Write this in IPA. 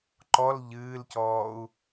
ǃɔl ʎɨːlcɔːu̯

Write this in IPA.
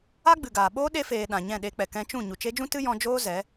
a˦ɡ͡bɨ˨ɡaː˨ ɓoː˦ ɗe˧feː˨ ɗã˨ɲɛ̃˦˨ɗe˧k͡pɛ˨ kɛ̃˧t͡ʃũ˦˨ ɲu˨t͡ʃe˧d͡ʒũ˦ tɨ˦ jɔ̃˧d͡ʒoː˦ zɛ˨˦

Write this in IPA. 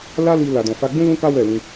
la˦li˧ la˨dɔ̃˨fa˧ɡ͡bũ˦ lũ˦ka˦wɛ˦˨lĩ˧

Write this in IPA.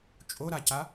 t͡ʃʼoɾaca

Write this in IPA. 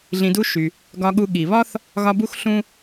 ɮĩ˨du˦ ʃy˩ | ɡɒ˨ɠu˨ ɠi˩βɒ˥θ | ɣɒ˦bu˥x ɬũ˥

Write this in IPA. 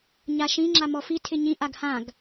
ɲaʃĩ ŋ͡ǁamɔfi tʰɪɲĩ ʔaɡhãɡ

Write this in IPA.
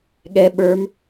ɠɛ ɓə˞m

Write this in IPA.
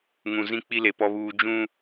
ŋũ˨zĩ˦ k͡pi˦le˨pɔ˦ βuː˦ d͡ʒũ˦

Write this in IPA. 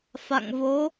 fa̰˧˨ŋvo˨˦

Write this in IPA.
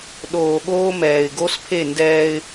ɗoː˨ɠoː˦mɛː˨ɪ̯ ɡo˦spʰe˦˨ ndɛː˦ɪ̯

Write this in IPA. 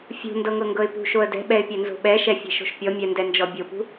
fʲṳndɤŋɤŋɡɤɪ̯ pṳʃoə̯ dɛ̤ɓɛɪ̯pʲɛnzo̤ ɓɛʃɛfʲɛ̤ʃo̤ʃ pʲɔmʲɛndɛnd͡ʒɔ bʲopṳ

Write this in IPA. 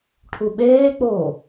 ʈʰuɓeːk͡poː

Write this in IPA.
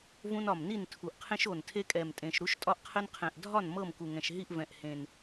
vũ˦nɒ˨˩mni˥˨n tʰu˨˩ʔqʰẽ˦ʃo˨˩ntʰe˦ kʼɛ˨˩mtʼẽ˨˩ʃ ɾu˦ʃtʼɒ˦ʔ qʰɘ˦nqʰɛ̃˨˩ʔ dʱɒ˥˨n mɤ˥˨mku˨˩ŋɛ̃˨˩ʃɦi˥˨ʔ vɛ̃˨˩ʔhẽ˨˩n

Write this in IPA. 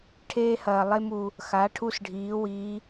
ʈʰeː˧hɐː˩ lˠe˧mu˩ | xa˩˧ ʈʰu˧s ɖʱiː˩˧wiː˩˧

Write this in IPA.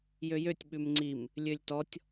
jøjøtʲ ɓʉmŋ͡ǀim | lʲølʲtɔtʲ

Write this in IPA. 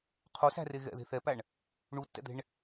qʰosæ̤re ɣɛ̰ðe̤ θɛpæɳ | ɳutːɛ̰d̪e̤ɳ

